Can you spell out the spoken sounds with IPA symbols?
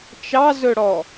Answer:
t͡ʃ ɑ z ɵ ɽ ɔ

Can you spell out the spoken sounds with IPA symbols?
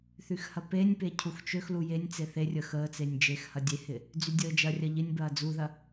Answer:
θ y x h ɐ p e nʲ p e cʰ u x t͡ʃ ø x l u j e nʲ t͡s e θ e rʲ ə x əː t͡s e nʲ d͡ʒ e x h ɐ dʲ e h ɪ | d͡z y dʲ əː d͡ʒ ɐ rʲ ɐ ʎ ɪ nʲ b ɐː d͡z u ð ɐ

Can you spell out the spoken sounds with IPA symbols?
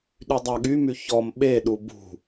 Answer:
ɗ y dˤ æ ɠ y m y ç ɔ m ɓ e ɗ u b ṳ

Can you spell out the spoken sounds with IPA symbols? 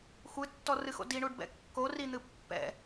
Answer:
xʷ ɨ tː ɔ r ɨ x o̰ d i ɳ u ɖ b ɛ̰ kː o r i n̪ ɨ pː ɛ̰

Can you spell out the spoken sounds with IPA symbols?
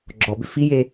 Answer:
ɡ͡ǁ ɔ b ʏ f i j e

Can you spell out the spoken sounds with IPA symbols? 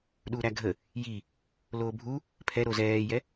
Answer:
ɗ uː ɾ æ ɡʱ ə | j i | l oː bʱ u | pʰ ɛ ɾ o z ɛː j ɛ

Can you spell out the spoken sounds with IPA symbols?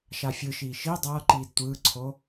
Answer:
ʃ a fʲ ɯ ʃ iː ʃ i dˤ ʌː ǃ iː d tʷ ɯː ǀʰ o

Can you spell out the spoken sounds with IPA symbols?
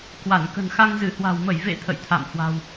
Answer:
k w a˧˩ n k ə̤˨˩ n x a˧ ŋ z ɨ˧˩ h w a̤˨˩ w m ə˧˩ j v ḛ˧˨ t̪ʰ ə̰˧˨ j t̪ʰ a̰˧˨ m h w a̤˨˩ w

